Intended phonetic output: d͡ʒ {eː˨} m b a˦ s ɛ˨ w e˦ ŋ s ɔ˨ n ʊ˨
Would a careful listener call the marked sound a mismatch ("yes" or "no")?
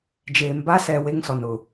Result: no